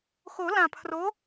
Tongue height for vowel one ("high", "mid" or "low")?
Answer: mid